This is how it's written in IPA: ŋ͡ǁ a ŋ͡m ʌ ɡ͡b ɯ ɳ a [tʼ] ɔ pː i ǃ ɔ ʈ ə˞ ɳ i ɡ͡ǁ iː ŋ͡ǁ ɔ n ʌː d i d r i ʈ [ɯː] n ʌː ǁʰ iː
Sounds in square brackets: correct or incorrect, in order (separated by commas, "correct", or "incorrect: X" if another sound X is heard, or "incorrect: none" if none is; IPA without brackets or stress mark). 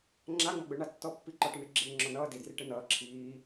incorrect: tː, incorrect: ɯ